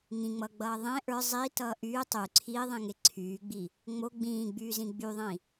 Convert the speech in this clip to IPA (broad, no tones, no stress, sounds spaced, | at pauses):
ŋ ĩ ŋ͡m ʌː ɡ͡b ʌː ðˤ ẽ ʔ ə˞ zˤ i t ʌː ʔ yː tˤ y ǀʰ iː ðˤ ĩ ŋ e ǀʰ yː ɡ͡b i | ŋ͡m o ɡ͡b ĩː ɡ͡b yː z ĩ ɡ͡b y ðˤ ĩ